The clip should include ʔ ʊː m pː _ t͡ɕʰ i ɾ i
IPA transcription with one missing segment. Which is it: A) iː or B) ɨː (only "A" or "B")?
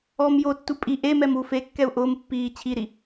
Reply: A